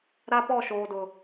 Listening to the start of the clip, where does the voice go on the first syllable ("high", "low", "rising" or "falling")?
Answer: high